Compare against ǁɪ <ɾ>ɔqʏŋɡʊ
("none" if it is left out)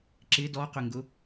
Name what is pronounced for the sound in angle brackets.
d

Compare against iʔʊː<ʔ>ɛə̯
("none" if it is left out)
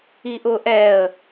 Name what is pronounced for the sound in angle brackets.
ʔ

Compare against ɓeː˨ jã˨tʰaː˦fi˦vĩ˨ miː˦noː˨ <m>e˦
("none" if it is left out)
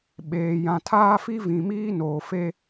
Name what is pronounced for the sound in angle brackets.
f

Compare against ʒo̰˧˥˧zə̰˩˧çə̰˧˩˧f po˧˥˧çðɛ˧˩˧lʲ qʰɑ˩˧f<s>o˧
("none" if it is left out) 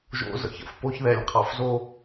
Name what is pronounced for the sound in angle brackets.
z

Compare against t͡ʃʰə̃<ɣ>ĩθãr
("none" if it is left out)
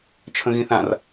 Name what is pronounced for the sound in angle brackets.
ɣ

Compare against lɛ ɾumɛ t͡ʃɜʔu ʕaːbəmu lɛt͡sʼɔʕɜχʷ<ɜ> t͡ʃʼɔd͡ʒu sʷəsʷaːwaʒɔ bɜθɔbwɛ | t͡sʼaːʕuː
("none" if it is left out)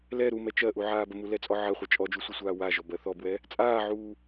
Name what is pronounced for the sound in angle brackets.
ɜ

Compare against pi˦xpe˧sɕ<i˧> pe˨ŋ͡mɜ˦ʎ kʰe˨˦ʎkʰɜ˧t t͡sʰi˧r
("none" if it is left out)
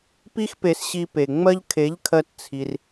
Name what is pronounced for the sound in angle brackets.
i˧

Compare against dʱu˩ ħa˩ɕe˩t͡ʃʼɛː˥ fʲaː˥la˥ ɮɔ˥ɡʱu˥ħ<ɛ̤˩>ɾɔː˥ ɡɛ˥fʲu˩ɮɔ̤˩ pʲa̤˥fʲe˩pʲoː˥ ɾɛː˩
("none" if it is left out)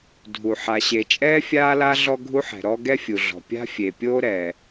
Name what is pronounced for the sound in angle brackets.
ɛ̤˩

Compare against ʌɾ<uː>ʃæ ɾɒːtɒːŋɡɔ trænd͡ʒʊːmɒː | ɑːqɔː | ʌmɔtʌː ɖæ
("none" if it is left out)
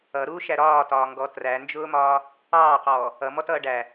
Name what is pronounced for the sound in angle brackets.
uː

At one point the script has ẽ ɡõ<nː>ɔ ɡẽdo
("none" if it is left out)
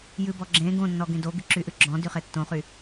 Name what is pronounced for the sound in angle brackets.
nː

